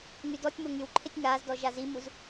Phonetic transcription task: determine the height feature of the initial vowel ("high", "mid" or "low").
high